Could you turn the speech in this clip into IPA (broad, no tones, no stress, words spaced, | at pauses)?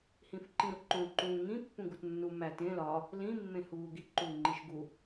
hĩfǃĩɾuǃõ ǃũːŋĩ pːũɡutnːu mætẽ lɒ | lĩ mːẽhuːɡi ǃuːŋ͡ǃiʃɡu